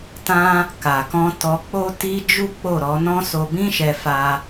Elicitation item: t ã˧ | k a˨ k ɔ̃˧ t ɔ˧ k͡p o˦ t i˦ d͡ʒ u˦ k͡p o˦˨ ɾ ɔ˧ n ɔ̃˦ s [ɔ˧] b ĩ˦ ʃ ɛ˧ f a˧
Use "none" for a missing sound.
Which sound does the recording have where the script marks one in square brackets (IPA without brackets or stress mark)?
o˧